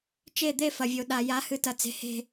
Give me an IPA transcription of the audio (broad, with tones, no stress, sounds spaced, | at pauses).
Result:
t͡ʃ e˧˩ d̪ e˧˩ f ɐ˩ vʲ o˩ ɗ a˩ j a˩˥ h ɨ˩˥ t ɐ˩ t͡s e̤˩ h e̤˧˩